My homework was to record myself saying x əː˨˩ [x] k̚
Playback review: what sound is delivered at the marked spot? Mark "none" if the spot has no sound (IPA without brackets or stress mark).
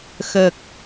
none